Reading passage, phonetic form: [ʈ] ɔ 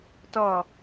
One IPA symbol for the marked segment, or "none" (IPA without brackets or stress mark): t